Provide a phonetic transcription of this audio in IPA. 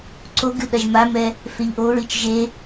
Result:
ǀ o ɡ ɨ ɗ ɐ ʒ m a m ɛ | f e ʎ ʔ o ɹ i t͡ʃ ʒ e

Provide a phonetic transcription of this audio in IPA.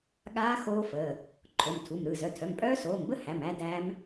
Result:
ɠ aː˦˥ x oː˦˥ f əː˩˧˩ | ǃʰ o˩˧˩ m tʰ u˩˧˩ m ɾ ɯ˩˧˩ z œ˩˧˩ tʰ œ˩˧˩ m pʼ œː˦˥ s oː˩˧˩ m b ə˦˥ h æ˩˧˩ m æ˦˥ d æː˦˥ m

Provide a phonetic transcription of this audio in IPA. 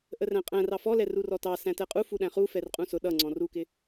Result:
ʔ ə r æ̃ qʼ æ̃ r ɑ f ɔ l ɛ r u r ɔ t ɑ s æ̃ t ɛ qʼ u f u ɗ æ̃ χ u f ɛ r qʼ ũ s ʊ ɗ ʌ ŋ͡ǀ ɔ̃ r u k ɪ

